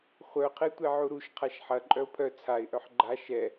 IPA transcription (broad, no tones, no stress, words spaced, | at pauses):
χʷœqʰe tʷeʕuɾuʃ qʰaʃħɐ ǃʼœʊ̯pʰœ t͡sʰaɪ̯ʔœħ ɡ͡ǃa ʃɛ